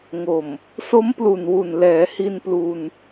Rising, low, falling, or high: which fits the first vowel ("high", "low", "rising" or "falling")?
low